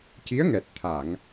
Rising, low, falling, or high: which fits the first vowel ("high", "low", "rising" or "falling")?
rising